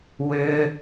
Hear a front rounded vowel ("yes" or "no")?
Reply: yes